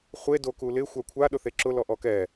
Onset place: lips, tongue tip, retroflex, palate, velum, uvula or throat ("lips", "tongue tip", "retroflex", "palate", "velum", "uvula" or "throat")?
uvula